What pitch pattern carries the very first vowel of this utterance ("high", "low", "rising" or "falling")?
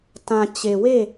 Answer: low